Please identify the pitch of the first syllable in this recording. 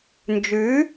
rising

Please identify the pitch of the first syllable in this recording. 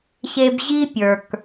low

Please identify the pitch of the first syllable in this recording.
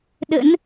rising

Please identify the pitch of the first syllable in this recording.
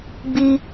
high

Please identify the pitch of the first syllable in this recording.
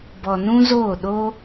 low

